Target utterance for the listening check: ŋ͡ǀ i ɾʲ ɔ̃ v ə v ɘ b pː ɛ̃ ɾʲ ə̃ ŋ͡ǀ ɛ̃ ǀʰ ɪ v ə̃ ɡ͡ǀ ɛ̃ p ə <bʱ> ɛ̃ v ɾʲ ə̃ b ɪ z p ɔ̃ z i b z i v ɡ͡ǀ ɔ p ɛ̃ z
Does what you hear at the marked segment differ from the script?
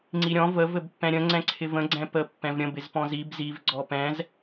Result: yes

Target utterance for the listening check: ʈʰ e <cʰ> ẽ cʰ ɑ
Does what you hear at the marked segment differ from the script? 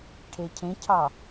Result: no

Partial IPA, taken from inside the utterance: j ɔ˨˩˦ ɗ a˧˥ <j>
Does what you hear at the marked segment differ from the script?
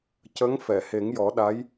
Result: no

